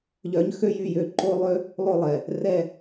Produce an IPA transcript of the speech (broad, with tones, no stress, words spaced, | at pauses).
ʎœ˧˥ɲxø˥jy˦˨jø˦˨ ǃo˥lˠø˥ | lˠo˦˨ lˠɛ˩ | rɛ˦˨